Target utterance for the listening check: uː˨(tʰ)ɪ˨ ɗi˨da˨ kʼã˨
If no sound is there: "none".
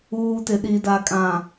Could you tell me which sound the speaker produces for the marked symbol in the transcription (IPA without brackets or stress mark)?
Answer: t